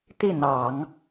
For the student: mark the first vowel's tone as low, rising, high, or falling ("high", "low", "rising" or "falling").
falling